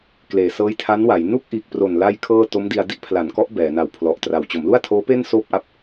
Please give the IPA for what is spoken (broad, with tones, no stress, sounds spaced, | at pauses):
k l eː˩˦ s ɤː˦˥ j tʰ a˦˥ n w a˩˦ j n u˥˩ k̚ ʔ iː˨˩ k̚ p r o˨˩ n l a˥˩ j kʰ ɤː˥˩ t o˦˥ m d i˧ a̯ d i˥˩ ʔ pʰ l a˩˦ n k ɔ˦˥ ʔ b ɛː˩˦ n a˨˩ w pʰ l ɔ˨˩ ʔ t r a˨˩ w t͡ɕ o˩˦ m l u˥˩ a̯ tʰ oː˦˥ p e˥˩ n s oː˥˩ p̚ ʔ a˦˥ p̚